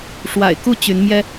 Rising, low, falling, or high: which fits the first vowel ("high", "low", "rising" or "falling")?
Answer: low